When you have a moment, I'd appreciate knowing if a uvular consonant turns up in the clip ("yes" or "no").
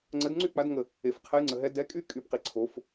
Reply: yes